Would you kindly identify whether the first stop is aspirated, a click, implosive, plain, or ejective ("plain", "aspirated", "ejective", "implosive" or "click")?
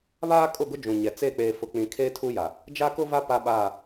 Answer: ejective